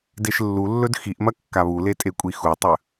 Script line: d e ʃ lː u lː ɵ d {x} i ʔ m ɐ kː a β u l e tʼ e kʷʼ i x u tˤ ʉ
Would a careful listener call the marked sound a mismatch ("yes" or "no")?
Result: no